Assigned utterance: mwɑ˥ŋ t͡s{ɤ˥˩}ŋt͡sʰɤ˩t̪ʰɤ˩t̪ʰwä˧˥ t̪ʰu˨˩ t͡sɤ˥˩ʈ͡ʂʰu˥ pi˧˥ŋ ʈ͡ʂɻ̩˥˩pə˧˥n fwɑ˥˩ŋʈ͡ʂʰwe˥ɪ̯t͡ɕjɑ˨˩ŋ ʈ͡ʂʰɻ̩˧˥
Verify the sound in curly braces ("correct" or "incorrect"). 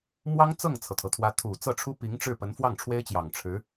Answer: correct